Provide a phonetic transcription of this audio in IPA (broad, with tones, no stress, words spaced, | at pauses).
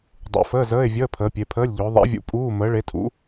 dˤṵ˨˦fəː˧˥˧zəː˧˥˧e̯ vʲəː˧˥˧ pʰəː˨˦pʲe˨˦pʰəː˧˥˧lʲʎʊː˨˦ ðˤɛ̰˨˦vʲṵ˨˦ pʼuː˧˥˧ məː˨˦ɭe˨˦tʰṵ˨˦